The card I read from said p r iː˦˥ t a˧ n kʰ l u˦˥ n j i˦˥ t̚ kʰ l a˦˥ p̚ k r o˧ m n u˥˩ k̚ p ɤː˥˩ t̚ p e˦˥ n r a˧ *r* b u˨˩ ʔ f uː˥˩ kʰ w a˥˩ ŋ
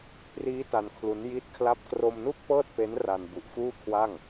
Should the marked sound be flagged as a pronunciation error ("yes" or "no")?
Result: yes